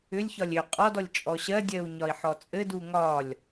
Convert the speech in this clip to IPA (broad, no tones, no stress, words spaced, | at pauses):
ʏlʲçɒlʲ ʏ qʼɔdɔlʲ t͡ʃʼɔɕɜdʲɜu̯ ɲɒi̯ħɔt͡sʼɘdu ŋɒlʲ